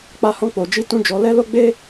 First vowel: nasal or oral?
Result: oral